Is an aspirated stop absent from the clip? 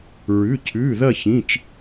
no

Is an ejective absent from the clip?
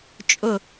no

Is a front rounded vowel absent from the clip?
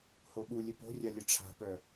no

